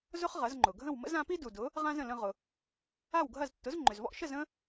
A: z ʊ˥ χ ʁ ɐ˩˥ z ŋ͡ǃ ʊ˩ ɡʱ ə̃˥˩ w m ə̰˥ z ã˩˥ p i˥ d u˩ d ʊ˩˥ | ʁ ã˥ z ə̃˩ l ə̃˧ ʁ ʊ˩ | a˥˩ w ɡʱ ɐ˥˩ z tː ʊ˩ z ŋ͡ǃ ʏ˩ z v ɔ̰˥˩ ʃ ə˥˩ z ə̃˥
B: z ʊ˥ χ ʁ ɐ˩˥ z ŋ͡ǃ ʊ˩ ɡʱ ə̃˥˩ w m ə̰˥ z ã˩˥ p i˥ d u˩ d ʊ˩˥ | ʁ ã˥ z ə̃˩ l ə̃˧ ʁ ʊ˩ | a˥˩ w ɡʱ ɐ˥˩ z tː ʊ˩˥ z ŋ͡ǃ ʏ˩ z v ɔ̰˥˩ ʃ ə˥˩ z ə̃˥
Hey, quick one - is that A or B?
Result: B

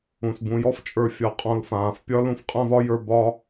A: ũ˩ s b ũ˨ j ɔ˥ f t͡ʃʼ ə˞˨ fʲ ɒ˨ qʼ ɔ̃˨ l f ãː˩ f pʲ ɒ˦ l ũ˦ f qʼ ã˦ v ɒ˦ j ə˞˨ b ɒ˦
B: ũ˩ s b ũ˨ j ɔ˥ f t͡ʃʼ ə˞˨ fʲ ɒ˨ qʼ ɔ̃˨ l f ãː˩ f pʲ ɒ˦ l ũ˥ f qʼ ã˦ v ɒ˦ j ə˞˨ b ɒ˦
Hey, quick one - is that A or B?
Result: A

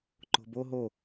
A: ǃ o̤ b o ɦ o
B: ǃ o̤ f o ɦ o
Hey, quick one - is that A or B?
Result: A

